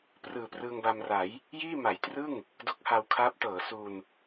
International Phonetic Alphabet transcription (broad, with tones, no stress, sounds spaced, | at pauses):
p r ɯː˨˩ p r ɯː˧ ŋ b a˧ m r a˩˦ j | j iː˥˩ m a˩˦ j t r ɯ˥˩ ŋ | d o˦˥ k̚ h a˧ w kʰ aː˦˥ p̚ t ɤː˩˦ s u˧ n